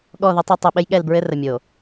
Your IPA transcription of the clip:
ɠɔ˦˨ðə˦tˤɤ˦ tˤe˨ɓɘ˦jɠɛ˦˨lbɹɘ˦ rə˨mʲo˨

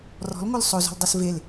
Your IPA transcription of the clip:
rɔ̤lŋʷœl sˤozɔ̤ldˤœs vel

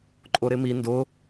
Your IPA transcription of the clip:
ǃʼʊɾɪmi ndʊ

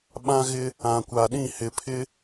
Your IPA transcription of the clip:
ɓã˦ɣɪ˦ | ã˨ kʷa˨ɗĩ˦˨ hɪ˨pʰɪ˦

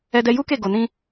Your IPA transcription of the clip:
ɛ˦dɛ˦ ju˦ke˦˨ ɡo˧nĩ˦

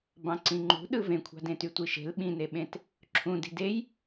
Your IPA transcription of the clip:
bɑ̃ǀĩŋ͡ǃṳɗɯ vẽkʷʰɑ̤ dẽtytʷiʃe̤l ɓĩneɓẽt | ǁʰũdi̤ dej

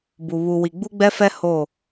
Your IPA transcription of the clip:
bu˨ βu˨ wi˨ɡ͡bu˦ɡ͡bɛ˦fɛ˦ ho˦˨

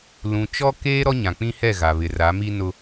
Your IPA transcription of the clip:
lũ˨ t͡ʃɔ˦keː˦ ɾɔ˦ɲã˨k͡pĩ˦hɛ˦˨ ɣa˨βɪ˨ra˨˦mi˦ nʊ˦

